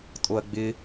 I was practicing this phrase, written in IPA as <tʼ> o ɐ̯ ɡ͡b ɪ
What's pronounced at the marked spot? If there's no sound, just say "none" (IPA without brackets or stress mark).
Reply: tʼ